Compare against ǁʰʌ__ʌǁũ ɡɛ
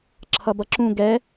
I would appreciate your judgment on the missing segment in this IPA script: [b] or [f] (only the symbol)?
b